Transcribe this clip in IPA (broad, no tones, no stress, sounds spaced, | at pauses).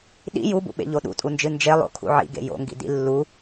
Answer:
ɗ ḭ j u b ṵ ɓ ḛ ʎ o ɗ ṵ tʼ u n d͡ʒ ɨ n d͡ʒ e lˠ o̰ kʰ ṵ ʕ ḭ ɡ ḛ j o̰ ŋ ɡ ḭ d ḭ lː u